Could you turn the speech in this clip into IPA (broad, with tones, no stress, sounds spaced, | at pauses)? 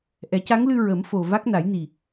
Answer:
ʔ ɛ˨˩˦ c a˧˥ ŋ l ɨ˧ ɹ ə˨˩˦ m f o˨˩ v a˦˥ k̚ n a˨˩˦ j n i˨˩